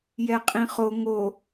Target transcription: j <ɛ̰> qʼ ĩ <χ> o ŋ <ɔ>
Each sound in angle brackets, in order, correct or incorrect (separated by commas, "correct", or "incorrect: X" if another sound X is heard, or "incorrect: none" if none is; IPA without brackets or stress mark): incorrect: ɛ, correct, incorrect: o